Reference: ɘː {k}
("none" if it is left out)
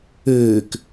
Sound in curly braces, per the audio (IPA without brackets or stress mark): k